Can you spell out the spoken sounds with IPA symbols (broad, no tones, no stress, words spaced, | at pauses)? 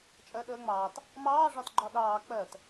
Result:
t͡ʃʼɜɗəːŋ͡mɑːt | mɑː ʐɒtɡ͡ǃɒɗɑː k͡pɜt